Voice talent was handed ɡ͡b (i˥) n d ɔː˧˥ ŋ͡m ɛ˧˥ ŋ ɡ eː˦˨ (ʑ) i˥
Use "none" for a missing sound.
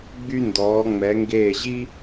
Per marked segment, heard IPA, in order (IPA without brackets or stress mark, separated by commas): y˥, ʑ